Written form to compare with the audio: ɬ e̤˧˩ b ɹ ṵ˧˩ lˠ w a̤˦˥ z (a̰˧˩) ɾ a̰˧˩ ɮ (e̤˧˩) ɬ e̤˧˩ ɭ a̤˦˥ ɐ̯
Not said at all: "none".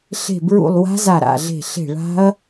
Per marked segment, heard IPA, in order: a˧˩, e̤˧˩

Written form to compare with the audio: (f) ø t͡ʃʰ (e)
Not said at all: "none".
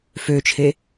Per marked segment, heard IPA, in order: f, e

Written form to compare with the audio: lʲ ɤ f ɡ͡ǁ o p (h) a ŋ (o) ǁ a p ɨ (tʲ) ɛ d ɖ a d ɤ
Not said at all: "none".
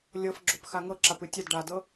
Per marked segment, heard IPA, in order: x, ɤ, tʲ

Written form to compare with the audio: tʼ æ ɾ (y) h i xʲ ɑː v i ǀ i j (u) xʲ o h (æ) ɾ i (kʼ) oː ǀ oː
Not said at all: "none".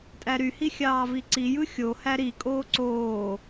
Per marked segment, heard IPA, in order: y, ɯ, æ, kʼ

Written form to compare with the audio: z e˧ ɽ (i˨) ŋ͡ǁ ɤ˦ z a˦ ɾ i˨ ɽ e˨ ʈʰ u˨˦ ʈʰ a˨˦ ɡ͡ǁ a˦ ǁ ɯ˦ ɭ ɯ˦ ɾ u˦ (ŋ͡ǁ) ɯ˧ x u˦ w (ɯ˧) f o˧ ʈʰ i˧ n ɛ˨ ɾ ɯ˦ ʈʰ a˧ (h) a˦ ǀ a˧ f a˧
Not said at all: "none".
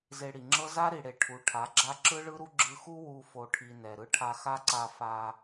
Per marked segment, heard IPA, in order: i˨, ɡ͡ǁ, u˧, x

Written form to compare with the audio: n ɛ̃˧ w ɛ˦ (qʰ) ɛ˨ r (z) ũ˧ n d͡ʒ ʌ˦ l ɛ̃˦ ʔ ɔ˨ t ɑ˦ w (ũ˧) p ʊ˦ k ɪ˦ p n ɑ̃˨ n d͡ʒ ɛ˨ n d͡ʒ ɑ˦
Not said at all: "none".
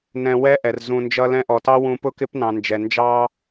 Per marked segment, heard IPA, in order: ʔ, z, ũ˧

